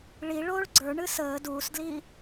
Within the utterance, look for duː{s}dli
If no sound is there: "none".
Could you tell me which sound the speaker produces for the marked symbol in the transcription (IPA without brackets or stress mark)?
s